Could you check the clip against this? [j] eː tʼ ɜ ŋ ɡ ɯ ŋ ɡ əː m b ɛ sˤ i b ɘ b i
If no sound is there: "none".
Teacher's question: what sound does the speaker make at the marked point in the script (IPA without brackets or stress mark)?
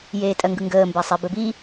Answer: j